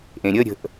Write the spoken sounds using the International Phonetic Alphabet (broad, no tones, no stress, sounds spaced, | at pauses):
ʔ ẽ ɾʲ ə ɾʲ ə̤ ʔ